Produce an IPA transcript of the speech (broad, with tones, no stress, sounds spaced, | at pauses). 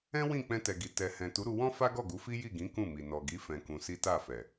ɛ̃˦ w ĩ˦˨ k͡p ɛ̃˧ t ɛ˨ ɡ i˨ t ɛ˨ h ɛ̃˨ t u˨˦ ɾ u˧ w ɔ̃˦ f a˦ ɡ ɔ˦˨ ɡ u˨˦ f i˦ j i˦˨ ɡ ĩ˨˦ k ũ˦˨ m i˨ n ɔ˨ ɡ i˨˦ f ɛ̃˧ k ũ˧ s i˦ t a˦˨ f ɛ˨